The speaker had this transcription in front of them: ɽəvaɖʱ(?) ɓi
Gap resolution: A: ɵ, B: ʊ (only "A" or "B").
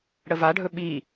A